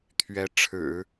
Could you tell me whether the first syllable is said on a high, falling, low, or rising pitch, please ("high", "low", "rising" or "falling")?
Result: rising